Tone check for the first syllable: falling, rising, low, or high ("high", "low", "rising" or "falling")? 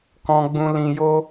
high